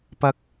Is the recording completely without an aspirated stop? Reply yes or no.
yes